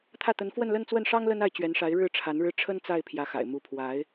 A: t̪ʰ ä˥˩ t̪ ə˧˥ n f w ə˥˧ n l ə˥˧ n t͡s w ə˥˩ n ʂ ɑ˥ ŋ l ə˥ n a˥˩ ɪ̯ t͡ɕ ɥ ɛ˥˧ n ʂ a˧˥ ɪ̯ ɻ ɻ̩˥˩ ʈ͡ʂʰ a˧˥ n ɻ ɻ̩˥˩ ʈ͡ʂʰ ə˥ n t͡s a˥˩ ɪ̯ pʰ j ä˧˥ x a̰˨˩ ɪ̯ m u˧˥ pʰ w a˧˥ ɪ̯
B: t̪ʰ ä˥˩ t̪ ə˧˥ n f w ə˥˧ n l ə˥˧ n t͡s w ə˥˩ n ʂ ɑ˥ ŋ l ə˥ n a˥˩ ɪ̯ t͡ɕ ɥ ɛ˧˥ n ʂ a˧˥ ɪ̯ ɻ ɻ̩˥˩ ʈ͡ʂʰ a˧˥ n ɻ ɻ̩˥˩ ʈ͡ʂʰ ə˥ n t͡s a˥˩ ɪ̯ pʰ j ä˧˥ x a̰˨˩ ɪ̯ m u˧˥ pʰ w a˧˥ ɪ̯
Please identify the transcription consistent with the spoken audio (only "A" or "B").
B